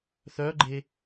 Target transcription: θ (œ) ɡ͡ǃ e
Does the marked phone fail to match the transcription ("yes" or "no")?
no